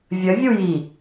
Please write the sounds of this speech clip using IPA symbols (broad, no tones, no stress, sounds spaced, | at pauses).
vʲ ə vʲ u j i